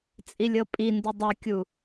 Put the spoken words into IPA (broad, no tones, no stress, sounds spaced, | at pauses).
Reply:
t͡sʼ i lʲ ɤ pʼ i n d u dˤ ɤ kʲ u